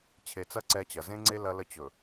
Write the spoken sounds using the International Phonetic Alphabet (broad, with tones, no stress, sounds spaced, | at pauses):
t͡ɕʰ e˨ t͡s ɐ˦ ǀ ɛ˦ t͡ɕ ɐ˨ z ẽ˦ ŋ͡ǀ e˦ l ɐ˦ l ə˦ t͡ɕ ɵ˨